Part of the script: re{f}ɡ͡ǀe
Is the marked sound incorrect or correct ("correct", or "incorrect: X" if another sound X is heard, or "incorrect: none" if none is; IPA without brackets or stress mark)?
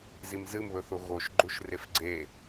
correct